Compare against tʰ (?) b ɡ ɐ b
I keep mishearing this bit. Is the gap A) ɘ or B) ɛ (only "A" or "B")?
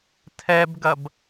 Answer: B